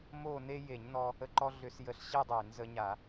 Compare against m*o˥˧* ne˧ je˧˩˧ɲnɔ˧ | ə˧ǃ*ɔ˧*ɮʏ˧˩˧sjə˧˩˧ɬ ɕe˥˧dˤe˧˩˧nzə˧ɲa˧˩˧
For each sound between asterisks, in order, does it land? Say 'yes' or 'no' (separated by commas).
yes, yes